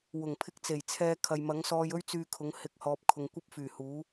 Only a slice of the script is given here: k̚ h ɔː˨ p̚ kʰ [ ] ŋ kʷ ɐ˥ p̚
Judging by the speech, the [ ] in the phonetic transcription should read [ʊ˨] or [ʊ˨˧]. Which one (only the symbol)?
ʊ˨